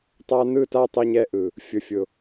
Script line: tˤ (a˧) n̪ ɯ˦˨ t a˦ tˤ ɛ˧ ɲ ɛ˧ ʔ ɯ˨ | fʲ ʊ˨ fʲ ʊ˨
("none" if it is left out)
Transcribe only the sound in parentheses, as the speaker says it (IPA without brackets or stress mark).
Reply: a˧